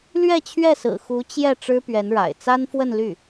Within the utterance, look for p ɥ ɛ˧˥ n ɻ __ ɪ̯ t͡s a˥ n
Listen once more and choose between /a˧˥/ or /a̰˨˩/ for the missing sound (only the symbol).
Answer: a̰˨˩